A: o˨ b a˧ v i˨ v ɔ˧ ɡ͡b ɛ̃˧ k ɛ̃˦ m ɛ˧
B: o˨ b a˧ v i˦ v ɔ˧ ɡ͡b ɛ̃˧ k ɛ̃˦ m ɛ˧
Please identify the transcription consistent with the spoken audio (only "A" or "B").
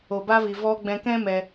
A